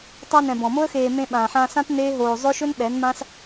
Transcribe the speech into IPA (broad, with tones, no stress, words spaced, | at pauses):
tˤa˧nɛ̃˨ bɔ̃˨mo˦ə̯xeː˧ mẽ˧ɓãː˨ħã˧sã˦t neː˦ɦoː˧ zˤɵ˦ʃɵ˦nɓɛ˨˦n mã˦s